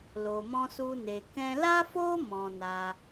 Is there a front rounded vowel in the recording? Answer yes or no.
no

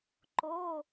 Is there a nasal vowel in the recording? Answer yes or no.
no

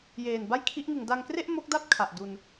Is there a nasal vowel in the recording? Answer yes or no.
no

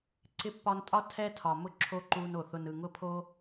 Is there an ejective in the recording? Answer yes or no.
yes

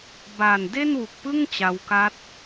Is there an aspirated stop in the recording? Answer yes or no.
no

